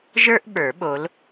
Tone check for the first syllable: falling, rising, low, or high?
high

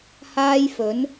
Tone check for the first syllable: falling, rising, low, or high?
high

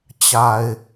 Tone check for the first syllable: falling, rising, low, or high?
low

